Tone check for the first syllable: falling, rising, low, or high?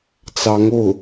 rising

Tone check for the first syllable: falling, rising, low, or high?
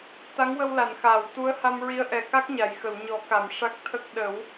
rising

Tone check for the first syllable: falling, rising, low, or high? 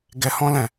low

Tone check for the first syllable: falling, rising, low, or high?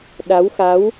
rising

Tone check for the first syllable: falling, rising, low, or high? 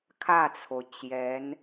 falling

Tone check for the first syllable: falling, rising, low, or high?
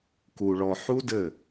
low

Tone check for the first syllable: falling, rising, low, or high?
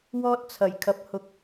high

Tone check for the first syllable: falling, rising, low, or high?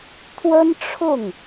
high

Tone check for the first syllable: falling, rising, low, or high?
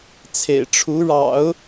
low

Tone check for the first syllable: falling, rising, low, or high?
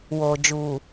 low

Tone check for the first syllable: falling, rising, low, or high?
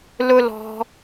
high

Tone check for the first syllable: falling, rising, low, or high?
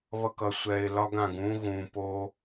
low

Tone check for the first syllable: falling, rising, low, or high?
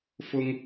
high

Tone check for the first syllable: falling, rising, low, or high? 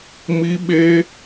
high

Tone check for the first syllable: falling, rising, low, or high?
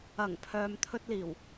low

